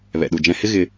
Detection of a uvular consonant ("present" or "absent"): absent